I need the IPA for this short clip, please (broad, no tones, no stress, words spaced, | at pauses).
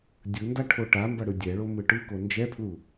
dʲɯnda ʈʰoʈambʌ ɽɯdʲɛɭo mɯʈɯko nd͡ʒɛpʰlu